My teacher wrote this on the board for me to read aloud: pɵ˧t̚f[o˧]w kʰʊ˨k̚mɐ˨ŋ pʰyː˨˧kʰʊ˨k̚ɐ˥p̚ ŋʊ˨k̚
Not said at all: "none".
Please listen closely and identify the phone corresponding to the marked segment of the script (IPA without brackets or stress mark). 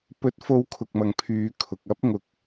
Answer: o˧